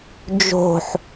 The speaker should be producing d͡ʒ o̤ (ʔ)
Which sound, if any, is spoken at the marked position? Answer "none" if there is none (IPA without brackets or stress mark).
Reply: ħ